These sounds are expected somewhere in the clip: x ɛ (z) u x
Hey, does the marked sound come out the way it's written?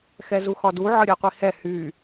yes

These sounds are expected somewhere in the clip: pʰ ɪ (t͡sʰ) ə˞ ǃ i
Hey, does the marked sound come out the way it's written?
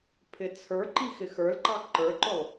yes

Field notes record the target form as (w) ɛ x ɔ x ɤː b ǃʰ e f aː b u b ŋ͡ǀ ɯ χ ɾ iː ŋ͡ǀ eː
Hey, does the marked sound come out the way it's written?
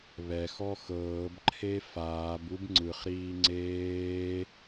no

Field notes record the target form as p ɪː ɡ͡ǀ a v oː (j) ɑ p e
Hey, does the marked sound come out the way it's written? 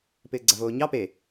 no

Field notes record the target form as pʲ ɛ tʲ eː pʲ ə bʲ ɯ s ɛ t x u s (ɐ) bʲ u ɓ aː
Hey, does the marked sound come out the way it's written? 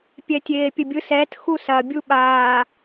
yes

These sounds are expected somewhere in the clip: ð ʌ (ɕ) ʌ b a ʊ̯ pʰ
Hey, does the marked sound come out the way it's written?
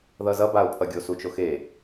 no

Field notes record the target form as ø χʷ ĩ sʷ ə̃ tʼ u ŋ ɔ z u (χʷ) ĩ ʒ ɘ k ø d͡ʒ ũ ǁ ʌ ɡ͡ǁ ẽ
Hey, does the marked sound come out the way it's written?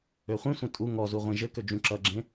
no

